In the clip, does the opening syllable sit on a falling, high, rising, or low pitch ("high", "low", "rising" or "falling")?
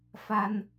high